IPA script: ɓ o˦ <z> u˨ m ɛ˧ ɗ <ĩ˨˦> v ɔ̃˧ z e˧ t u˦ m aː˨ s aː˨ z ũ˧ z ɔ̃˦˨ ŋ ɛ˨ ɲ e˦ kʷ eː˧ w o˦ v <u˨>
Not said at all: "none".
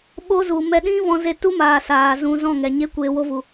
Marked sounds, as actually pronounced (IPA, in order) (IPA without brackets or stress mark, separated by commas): z, ĩ˦, u˨